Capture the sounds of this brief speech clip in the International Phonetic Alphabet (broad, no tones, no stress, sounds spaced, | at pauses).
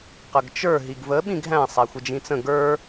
q ə ɡ t͡ʃ ə˞ ɦ i ɡ v ə ɓ ĩ ɡ ɦ æ̃ sˤ æ xʷ ɪ d͡ʒ ĩ t͡s ə̃ ɡ ə˞